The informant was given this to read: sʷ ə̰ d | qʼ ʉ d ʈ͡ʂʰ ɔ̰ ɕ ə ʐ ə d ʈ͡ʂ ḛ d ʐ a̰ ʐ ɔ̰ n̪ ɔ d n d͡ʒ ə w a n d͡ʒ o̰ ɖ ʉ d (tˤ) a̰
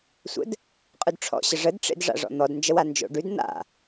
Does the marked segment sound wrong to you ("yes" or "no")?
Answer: yes